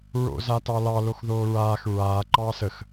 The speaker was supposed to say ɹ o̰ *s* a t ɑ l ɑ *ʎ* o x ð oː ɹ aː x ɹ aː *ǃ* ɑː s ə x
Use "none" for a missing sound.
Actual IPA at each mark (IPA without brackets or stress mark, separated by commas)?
z, l, ǃ